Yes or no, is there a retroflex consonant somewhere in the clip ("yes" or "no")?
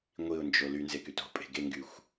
no